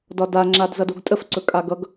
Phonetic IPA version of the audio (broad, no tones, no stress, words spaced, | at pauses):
dɒda ŋ͡ǁadzʌdoɡtʼəf ǀɵkʼaɡʌɡ